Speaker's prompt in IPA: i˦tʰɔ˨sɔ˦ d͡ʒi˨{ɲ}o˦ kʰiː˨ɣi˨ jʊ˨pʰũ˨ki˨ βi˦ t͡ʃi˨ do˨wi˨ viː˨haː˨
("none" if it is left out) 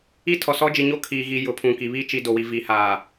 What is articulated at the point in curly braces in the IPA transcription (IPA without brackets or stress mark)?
ɲ